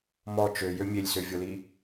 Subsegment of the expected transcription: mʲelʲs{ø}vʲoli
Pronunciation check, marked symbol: correct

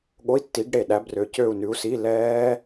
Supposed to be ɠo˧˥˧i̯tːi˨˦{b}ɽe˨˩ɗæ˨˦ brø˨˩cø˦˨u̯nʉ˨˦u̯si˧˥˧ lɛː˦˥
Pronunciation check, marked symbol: incorrect: ɡ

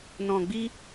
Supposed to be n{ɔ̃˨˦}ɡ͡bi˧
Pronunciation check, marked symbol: incorrect: ɔ̃˨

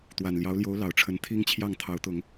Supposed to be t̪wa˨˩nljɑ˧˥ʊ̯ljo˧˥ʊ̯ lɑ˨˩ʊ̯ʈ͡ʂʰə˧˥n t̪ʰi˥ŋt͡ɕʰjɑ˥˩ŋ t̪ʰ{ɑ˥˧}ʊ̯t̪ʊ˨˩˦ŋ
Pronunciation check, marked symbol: incorrect: ɑ˧˥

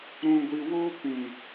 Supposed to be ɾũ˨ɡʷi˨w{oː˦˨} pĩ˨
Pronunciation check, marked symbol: incorrect: oː˦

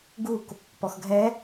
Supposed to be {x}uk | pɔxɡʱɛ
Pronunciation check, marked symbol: incorrect: ɡ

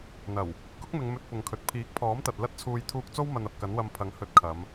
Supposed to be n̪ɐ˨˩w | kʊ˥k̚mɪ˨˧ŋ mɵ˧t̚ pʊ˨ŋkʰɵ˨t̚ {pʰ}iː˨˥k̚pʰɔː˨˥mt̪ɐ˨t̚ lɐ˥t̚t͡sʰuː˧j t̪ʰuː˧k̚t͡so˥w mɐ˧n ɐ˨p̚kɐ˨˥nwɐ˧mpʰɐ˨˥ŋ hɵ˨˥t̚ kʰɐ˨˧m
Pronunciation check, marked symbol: correct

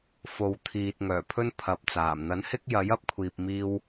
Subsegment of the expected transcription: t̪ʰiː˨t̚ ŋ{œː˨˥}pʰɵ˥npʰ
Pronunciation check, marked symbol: incorrect: œː˨˩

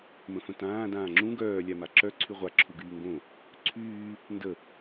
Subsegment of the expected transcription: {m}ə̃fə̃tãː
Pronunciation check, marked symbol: correct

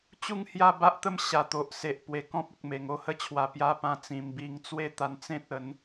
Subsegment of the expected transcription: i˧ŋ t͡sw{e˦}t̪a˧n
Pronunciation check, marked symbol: correct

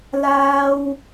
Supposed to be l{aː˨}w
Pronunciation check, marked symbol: incorrect: aː˥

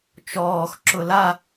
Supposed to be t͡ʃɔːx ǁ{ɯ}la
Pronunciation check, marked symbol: incorrect: ʊ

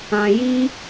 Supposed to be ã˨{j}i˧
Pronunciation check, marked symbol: correct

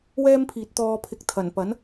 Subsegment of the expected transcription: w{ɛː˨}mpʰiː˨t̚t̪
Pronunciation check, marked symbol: incorrect: ɛː˥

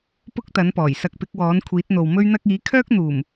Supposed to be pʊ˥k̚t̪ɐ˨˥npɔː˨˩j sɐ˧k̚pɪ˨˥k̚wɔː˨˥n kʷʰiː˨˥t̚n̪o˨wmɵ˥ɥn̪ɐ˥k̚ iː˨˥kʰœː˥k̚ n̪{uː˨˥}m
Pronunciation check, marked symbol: incorrect: uː˨˩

